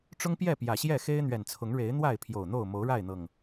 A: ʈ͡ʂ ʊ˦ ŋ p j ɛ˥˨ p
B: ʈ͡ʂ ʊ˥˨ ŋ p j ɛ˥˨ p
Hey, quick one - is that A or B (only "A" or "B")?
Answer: A